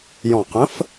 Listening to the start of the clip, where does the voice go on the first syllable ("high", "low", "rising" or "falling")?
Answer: low